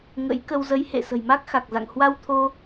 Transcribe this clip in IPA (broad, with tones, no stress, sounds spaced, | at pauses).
ŋ ə̰˧˥ j k ə˧ w z ə˨˦ j h ḛ˧˨ s ə̤˨˩ j m a˦˥ k̚ x a˨˩ k̚ z a̰˧˨ ŋ h w a˧ w t̪ʰ o˧